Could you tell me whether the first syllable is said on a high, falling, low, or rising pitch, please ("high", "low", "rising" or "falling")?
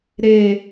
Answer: high